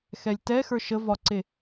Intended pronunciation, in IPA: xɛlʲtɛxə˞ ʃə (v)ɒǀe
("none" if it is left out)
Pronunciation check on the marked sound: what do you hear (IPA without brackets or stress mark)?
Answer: v